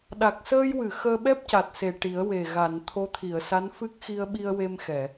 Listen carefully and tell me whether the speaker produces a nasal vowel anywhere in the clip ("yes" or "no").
no